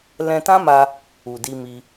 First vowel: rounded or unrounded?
unrounded